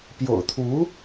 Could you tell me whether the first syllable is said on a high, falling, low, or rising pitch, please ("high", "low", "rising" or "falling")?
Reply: low